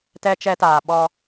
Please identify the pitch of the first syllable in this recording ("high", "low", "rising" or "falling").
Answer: high